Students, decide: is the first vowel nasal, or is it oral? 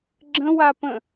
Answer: nasal